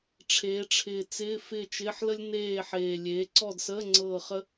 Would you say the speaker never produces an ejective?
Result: yes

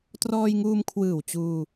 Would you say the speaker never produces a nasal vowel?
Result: yes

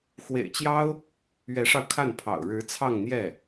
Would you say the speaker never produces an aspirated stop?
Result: no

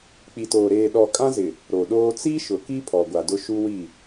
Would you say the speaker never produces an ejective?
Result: no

